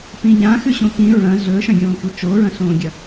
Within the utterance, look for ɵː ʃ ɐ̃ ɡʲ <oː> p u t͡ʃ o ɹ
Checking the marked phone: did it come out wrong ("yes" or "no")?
yes